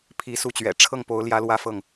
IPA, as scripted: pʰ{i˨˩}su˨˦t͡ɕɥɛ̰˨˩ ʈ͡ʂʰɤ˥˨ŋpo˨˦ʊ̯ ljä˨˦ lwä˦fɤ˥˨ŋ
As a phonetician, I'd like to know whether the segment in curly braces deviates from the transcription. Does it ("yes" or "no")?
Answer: yes